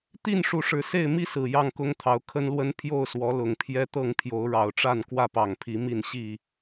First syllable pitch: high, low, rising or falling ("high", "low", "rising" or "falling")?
falling